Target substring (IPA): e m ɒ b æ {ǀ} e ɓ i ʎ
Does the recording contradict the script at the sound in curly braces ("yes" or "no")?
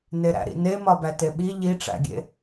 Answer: yes